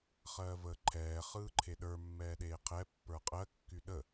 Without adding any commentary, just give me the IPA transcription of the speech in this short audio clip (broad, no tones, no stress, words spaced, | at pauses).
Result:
χɜːvəːǃʰɛː χɯːǃʰeɗə˞ mːɛːɗeːqʰɛ pːə˞qʼɜ kːyɗə